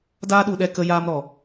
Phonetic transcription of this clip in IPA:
daː˦ɗu˧ɗɛ˧ kə˦jaː˦mɾɔ˨

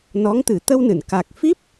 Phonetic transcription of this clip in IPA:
nɔ˧˥ŋt̪ɨ˨˩˦ t̪ə˧wnɨ˨˩˨n ka˨˩k̚fi˦˥p̚

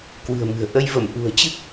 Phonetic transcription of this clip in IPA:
kwɨ̤˨˩ə̯mɨ̤˨˩ə̯ ʔə˧jvə˧˩m ʔṳ˨˩ə̯t͡ɕɨ˦˥k̚

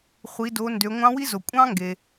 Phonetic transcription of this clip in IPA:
χʷi˩˧do˩˧ndø˩˧ ŋʷɑ̃˧˥wi˥zo˩ kʷʼɑ̃˥ŋɡe˩

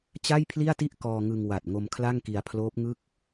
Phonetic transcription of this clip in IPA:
t͡ɕa˥˩jpʰli˥˩a̯ti˥˩ʔ kɔː˧ŋɯ˧ŋ wa˨˩t̚ŋo˧m kʰla˥˩ŋki˧a̯pʰloː˦˥p̚ŋɯ˥˩k̚

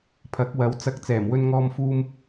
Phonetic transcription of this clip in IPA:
pʰɐ˨˥k̚wɐ˨˧w t͡sɐ˨k̚ t͡sɛː˨˩mwɵ˧n ŋɔː˧mfuː˧m

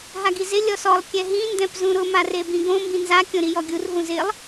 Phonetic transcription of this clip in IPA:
ɦaɡizɪ lʲɔsɔlˠ kʲɛɦĩ ndɛ̃pzũɾʊ marebĩɡõ mbĩnza kʲõɾijɔɡʲur ɦũzɪlˠ

